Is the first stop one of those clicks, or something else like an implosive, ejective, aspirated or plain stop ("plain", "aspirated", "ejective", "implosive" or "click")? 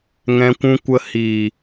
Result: plain